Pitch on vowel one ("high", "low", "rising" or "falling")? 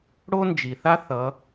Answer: high